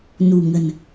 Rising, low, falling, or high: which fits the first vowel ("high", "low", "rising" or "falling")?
low